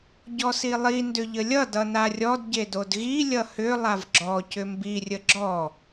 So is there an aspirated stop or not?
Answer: no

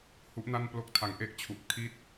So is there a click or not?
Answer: no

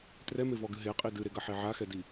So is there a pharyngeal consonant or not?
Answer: yes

